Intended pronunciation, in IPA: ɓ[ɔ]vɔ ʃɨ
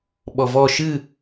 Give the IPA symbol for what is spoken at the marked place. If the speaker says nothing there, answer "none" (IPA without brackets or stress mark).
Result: ɔ